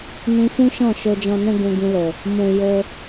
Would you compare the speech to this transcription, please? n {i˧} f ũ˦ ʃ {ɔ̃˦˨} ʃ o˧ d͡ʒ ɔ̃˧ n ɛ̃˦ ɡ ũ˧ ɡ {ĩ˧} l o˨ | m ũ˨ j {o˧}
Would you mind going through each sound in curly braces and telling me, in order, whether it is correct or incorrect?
incorrect: ĩ˧, correct, correct, correct

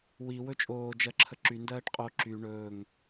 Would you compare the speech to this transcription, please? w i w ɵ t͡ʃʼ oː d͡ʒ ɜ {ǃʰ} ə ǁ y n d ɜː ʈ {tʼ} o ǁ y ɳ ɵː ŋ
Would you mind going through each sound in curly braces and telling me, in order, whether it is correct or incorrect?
incorrect: ǁʰ, incorrect: qʼ

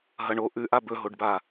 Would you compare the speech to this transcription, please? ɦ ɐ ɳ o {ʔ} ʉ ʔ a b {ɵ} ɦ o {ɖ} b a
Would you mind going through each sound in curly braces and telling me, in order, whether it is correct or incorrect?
correct, correct, correct

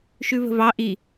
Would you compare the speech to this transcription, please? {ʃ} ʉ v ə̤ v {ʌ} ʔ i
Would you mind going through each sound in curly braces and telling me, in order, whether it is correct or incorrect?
correct, incorrect: ɑ

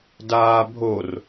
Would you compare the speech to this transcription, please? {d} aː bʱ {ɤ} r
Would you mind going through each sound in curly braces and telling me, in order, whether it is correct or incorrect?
correct, incorrect: o

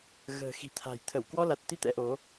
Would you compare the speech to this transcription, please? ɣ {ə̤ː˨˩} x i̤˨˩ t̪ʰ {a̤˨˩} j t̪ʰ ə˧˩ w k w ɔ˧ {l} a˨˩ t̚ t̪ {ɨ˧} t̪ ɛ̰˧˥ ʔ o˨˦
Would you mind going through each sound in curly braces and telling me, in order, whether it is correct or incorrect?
correct, correct, correct, incorrect: i˧

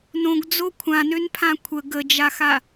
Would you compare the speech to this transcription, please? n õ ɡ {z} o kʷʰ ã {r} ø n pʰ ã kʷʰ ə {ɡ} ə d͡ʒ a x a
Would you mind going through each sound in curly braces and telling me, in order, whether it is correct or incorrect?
incorrect: d͡z, incorrect: n, correct

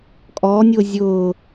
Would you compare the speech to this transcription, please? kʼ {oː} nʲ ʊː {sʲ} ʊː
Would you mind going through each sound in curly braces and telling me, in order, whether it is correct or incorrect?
incorrect: ɔː, incorrect: zʲ

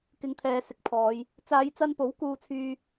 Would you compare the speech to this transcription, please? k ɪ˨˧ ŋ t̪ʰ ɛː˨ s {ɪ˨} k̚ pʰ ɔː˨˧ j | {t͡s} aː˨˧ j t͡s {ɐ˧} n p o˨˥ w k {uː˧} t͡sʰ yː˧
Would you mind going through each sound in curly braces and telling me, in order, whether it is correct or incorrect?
correct, correct, correct, correct

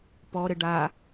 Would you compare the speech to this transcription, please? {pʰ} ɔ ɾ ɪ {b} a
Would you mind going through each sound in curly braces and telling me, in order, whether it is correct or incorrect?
incorrect: p, incorrect: ɖ

